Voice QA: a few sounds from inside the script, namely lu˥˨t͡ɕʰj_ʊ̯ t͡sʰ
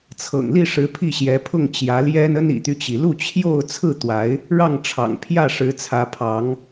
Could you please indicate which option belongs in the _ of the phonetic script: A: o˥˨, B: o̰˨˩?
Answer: A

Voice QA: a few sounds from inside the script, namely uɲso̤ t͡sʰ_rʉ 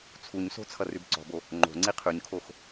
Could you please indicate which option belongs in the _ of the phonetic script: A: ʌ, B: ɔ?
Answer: A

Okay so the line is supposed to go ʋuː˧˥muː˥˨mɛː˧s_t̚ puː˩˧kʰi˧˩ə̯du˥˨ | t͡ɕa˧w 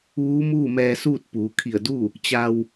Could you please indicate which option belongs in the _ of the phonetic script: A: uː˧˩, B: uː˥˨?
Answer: B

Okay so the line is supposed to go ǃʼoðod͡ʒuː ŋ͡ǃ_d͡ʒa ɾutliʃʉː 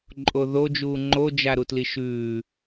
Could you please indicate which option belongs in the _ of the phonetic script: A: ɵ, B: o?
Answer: B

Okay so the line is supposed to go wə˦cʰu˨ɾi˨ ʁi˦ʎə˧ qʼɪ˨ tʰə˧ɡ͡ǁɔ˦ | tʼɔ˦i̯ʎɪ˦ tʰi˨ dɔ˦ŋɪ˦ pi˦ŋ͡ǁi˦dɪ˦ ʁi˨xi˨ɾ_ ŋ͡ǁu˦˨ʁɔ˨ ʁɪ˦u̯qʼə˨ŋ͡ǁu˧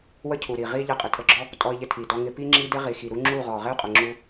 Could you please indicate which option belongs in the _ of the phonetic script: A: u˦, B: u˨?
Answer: A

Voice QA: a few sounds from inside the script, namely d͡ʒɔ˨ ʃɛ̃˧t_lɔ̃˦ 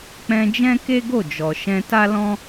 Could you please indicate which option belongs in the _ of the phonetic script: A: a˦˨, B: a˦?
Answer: B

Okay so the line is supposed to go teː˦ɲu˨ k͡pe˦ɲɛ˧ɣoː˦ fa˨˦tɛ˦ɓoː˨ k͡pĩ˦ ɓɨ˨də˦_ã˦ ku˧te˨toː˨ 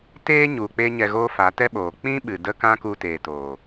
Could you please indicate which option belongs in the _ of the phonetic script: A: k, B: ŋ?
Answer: A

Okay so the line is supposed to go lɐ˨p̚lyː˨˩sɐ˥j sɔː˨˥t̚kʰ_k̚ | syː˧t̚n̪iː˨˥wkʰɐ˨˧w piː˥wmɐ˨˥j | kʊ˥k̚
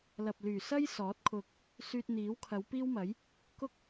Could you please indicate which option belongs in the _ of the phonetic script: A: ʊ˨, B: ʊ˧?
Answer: B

